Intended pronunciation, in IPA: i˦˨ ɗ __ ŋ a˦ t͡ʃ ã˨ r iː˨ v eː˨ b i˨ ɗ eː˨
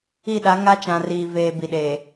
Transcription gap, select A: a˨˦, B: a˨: A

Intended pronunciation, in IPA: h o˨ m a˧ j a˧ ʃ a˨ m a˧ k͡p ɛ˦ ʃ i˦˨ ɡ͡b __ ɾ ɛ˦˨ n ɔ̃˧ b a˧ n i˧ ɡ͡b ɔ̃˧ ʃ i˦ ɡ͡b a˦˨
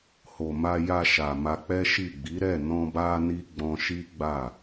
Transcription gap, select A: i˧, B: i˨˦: B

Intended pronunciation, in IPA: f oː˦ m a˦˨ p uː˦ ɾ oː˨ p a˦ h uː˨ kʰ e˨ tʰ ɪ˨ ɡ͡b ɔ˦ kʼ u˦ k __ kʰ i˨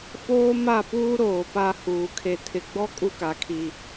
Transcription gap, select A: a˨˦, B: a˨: B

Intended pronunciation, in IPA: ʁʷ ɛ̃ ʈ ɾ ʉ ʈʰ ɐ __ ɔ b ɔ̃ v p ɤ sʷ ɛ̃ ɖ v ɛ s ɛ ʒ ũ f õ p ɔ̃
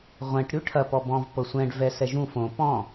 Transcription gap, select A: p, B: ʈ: A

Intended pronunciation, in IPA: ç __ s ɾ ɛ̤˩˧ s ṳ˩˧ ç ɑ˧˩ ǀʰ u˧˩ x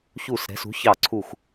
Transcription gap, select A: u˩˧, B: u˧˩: B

